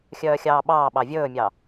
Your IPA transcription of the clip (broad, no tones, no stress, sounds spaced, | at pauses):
xʲ œː xʲ ɑː ɓ ɑː ɓ ɑ vʲ ɵː mʲ ɑ